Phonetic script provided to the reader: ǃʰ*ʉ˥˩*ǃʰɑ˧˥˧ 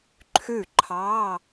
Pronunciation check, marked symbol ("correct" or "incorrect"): correct